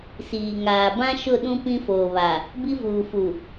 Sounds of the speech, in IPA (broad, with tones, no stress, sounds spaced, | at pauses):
s iː˨ ŋ aː˨ b ã˦ ʃ ʊ˦˨ ɗ ũ˦ p ĩ˦ f oː˨ β a˨ | b i˦ v uː˨ f u˨